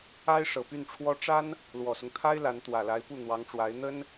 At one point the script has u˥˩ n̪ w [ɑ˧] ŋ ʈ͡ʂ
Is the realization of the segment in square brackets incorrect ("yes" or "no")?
yes